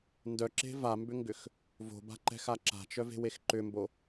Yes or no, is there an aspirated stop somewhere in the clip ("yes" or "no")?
no